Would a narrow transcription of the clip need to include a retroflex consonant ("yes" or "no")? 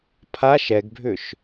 no